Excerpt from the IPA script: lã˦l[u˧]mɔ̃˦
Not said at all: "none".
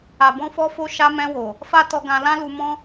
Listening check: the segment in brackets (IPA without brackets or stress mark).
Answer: u˧